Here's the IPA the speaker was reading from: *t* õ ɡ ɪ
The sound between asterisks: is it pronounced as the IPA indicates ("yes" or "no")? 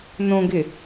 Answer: no